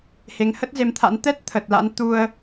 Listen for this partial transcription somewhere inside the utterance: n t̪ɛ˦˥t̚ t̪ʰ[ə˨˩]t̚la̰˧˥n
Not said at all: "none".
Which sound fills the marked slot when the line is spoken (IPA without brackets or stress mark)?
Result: ə˨˩